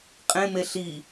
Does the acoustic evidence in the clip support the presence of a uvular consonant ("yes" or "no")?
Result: yes